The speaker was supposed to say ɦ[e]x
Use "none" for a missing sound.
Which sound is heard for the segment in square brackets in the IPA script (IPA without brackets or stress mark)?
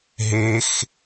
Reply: e